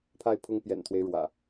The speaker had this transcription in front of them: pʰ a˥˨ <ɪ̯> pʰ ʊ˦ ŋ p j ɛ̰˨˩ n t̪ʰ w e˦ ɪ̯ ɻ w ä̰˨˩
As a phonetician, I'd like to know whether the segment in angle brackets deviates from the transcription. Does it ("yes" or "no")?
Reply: no